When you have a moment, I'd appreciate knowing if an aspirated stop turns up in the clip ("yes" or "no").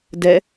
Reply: no